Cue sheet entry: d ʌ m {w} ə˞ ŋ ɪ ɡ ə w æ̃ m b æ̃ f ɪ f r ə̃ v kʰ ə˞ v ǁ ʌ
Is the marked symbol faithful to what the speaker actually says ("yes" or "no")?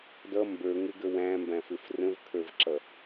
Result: no